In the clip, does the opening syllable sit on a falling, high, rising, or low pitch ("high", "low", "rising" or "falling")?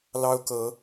high